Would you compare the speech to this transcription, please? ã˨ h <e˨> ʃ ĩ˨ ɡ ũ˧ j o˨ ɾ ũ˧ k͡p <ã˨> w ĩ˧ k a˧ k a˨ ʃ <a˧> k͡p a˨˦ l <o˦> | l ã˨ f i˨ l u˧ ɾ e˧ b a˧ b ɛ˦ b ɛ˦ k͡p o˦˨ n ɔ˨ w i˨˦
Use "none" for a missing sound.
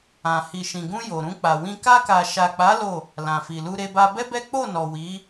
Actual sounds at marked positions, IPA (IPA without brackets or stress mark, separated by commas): i˨, a˨, a˨, o˦˨